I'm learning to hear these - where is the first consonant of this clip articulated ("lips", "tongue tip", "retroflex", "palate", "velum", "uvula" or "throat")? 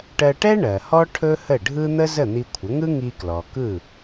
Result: retroflex